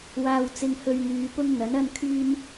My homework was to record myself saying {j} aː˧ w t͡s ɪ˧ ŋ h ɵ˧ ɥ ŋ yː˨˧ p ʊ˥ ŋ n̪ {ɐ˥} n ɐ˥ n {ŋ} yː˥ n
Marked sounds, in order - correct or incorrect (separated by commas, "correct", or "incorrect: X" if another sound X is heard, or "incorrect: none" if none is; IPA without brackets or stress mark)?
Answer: incorrect: w, incorrect: ɐ˨˥, incorrect: kʰ